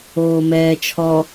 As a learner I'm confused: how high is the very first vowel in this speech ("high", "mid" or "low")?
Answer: mid